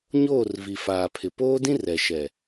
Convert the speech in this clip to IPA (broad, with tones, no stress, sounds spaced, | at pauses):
ɲ oː˦˨ r v i˨ f aː˨ pʰ ɪ˨ p oː˦ d ĩ˦ r ɛ˨ ʃ ɛ˨